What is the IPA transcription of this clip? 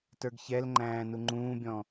t ə˞ ɡ ç ɛ l ŋ͡ǃ æ̃ː n u ŋ͡ǃ ũː bʲ ɔ̃

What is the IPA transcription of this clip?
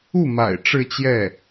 u˥˩ m a̰˨˩ ɪ̯ ʈ͡ʂ ɻ̩˥˧ t͡ɕ j ɛ˥˩

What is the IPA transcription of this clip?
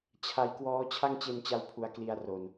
t͡ɕʰ a˧ j k w ɔː˦˥ t͡ɕʰ a˥˩ ŋ t͡ɕ e˧ n t͡ɕ a˧ w pʰ u˩˦ a̯ k l i˧ a̯ r o˨˩ n

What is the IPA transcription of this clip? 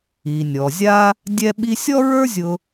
i˩ nʲ ɔ˩ zʲ a˥ | dʲ ɛ˥ ɓ i˥ sʲ ɔ˥ ɹ ə˞˥ zʲ ʊ˧

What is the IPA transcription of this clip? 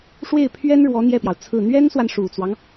ʂ w e˥˩ ɪ̯ pʰ ɥ ɛ˥ n ɻ w ɔ˧˥ n̪ j ɛ˥˩ p j ɑ˩ ʊ̯ t͡sʰ ɹ̩˥˩ n̪ ɥ ɛ˥ n s w a˨ n ʂ u˨˩ t͡s w ɑ˦ ŋ

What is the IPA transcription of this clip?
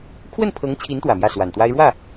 kʰ w ə˥˩ n pʰ ɤ˧˥ ŋ t͡ɕʰ i˧˥ n t̪ w ä˨˩ m j ä˥˩ s w a˨˩ n t̪ w a˥ ɪ̯ ɻ w ä˥˩

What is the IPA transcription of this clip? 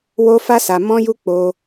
w o˦ f a˦ s a˧ m ɔ̃˦ j u˦ k͡p o˧

